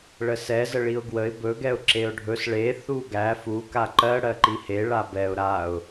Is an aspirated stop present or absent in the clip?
absent